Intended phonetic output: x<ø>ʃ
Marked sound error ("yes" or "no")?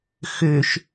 no